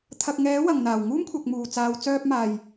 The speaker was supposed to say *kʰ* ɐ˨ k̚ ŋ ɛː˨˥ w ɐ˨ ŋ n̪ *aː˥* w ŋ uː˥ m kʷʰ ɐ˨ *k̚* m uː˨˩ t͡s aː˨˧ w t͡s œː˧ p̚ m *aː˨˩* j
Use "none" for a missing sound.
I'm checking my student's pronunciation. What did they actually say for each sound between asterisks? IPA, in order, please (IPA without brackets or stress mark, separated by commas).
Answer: t̪ʰ, aː˨˩, k̚, aː˨˩